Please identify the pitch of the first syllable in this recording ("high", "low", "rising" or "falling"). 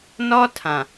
high